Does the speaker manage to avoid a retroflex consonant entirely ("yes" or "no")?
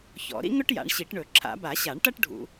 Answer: no